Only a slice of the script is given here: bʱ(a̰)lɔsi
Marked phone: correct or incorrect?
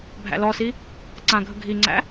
incorrect